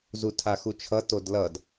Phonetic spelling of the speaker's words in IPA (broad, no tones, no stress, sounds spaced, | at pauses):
z u tʰ a x u t͡ʃʰ ʌ t o d l ʌ d